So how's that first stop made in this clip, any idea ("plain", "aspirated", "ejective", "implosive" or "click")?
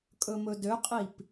ejective